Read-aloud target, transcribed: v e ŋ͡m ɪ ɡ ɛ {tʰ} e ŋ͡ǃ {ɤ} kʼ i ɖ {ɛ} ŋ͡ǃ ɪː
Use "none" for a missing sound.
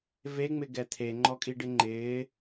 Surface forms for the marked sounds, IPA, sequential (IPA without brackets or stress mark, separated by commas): tʰ, ɔ, ɪ